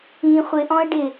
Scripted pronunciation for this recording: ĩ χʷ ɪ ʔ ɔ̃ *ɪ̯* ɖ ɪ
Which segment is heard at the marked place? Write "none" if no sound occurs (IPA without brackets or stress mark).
ə̯